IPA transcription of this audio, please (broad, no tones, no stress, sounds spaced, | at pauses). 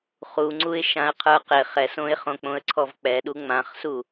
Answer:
χ u ŋ͡ǀ u ɪ̯ ʃ ã ə̯ qʰ ə˞ q ɪ χ ɛ s õ ɪ̯ χ õ k͡p õ ə̯ ǀʰ ɔ v k͡p ɛ ɗ u ŋ͡m ã χ s u